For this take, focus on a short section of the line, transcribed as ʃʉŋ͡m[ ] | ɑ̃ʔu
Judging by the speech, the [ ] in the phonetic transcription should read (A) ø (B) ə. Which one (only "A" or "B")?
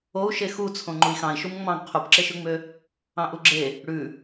A